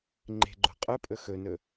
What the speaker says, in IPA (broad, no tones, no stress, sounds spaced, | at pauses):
ŋ͡ǃ e̤ ɡ͡ǃ o̤ qʼ ɵ pʼ ɵ x ɵ n ɵ